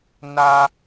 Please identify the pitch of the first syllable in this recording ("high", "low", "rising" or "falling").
high